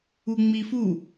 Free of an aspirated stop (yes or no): yes